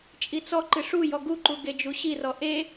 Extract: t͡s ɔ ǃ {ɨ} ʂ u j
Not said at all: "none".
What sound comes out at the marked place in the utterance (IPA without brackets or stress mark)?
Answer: ɨ